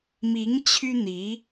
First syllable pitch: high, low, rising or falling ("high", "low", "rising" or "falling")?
rising